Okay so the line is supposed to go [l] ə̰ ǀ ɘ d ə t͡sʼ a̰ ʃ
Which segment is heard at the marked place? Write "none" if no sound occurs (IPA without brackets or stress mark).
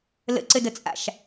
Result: l